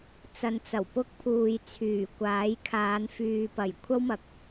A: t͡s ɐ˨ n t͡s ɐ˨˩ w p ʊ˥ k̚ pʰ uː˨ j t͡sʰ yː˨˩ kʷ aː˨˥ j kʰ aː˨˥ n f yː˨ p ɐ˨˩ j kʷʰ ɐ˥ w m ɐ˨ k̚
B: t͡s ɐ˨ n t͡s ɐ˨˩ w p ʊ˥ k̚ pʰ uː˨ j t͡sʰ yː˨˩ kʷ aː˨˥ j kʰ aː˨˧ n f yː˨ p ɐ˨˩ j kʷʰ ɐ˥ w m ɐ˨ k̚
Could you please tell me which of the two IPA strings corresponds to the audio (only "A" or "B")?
B